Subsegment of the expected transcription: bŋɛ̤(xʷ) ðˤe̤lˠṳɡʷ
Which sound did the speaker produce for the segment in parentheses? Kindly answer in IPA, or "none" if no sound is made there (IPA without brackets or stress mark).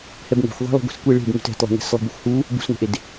xʷ